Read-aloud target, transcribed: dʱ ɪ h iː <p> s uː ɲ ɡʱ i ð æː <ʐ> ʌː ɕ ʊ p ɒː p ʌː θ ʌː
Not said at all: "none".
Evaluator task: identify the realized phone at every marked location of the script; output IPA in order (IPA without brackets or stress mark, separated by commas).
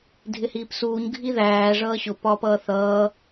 p, ʐ